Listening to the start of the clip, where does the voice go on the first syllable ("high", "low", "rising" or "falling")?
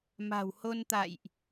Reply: low